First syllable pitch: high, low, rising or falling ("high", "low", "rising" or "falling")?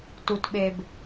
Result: low